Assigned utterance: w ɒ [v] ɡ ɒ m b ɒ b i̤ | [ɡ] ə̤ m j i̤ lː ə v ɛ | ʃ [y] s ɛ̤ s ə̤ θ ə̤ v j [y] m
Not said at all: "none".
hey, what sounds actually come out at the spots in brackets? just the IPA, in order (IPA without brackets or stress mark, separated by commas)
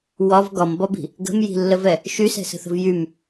v, ɡ, y, y